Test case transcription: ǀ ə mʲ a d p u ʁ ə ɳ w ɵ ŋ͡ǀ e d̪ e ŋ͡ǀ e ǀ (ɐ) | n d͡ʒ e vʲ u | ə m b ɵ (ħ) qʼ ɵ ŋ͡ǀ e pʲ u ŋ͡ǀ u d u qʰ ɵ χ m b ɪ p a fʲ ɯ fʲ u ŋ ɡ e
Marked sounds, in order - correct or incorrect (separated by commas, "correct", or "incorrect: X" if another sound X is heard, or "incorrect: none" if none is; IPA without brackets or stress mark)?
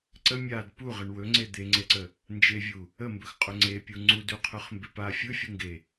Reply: incorrect: ə, incorrect: x